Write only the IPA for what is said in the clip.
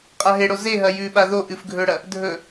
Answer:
qʼaɦeɽo zeɦɐ jʉɓa ðo ʔɨfɡʱɵɽɐ | dʱɵ

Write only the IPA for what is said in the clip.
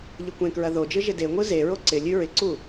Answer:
ʎɪkʷẽkɹɐ ðod͡ʒɯ ʒɪdeŋʷɯ zeɹo ǀɪlʲʉ ɹɪǀu

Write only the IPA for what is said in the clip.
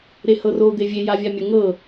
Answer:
ɾehɤro d̪evʲe javʲamʲə ŋɤ

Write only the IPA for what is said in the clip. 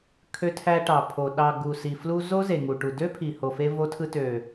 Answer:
kʰø˧tʰæ˧ ʈɑ˨pʰo˨ ɗɑ˨ ɡu˨si˨ flu˧ zo˦ze˨ ŋu˨ʈu˨ dø˦ pʰi˨ho˨fe˧ vo˧tʰɯ˧ tø˨

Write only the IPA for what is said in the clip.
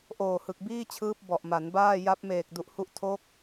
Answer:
ʔoː˨˩hɯ˨˩k̚biː˥˩t͡ɕʰɯː˦˥p̚ bɔ˨˩ʔma˩˦nbaː˥˩ ja˦˥p̚meː˨˩k̚du˨˩ʔhu˦˥ʔ tʰo˦˥k̚

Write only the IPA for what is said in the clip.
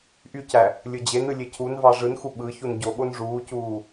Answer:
ʔycæ | lʲɯd͡ʑenɯ lʲecʰunvɑ ʐɯnxu ɓɯ çunɟoɠon ʐuːcuː

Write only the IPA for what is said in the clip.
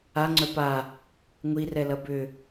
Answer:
aŋ͡ǀœ pa | ŋʷirɛlɐ bʏ

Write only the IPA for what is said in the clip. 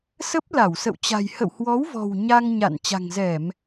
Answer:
sə˦˥p̚ la˧˩wsə̰˧˨wt͡ɕa̤˨˩j hə̰˧˨whwɔ˨˦wvɔ̤˨˩w ɲa˧ŋɲa̰˧˨n t͡ɕa̤˨˩ŋzɛ˧˩˨m

